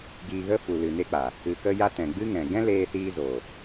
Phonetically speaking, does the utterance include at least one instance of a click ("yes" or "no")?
no